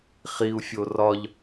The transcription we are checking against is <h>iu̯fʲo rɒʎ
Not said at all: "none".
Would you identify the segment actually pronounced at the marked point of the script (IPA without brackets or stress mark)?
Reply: χ